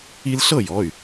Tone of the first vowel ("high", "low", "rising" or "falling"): high